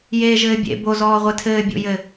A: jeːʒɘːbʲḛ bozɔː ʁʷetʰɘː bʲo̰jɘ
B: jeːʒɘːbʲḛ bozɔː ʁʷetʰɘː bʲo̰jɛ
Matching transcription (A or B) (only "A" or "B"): A